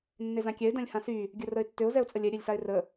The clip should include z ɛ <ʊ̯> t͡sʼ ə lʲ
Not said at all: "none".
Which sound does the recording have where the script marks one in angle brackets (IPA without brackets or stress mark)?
ʊ̯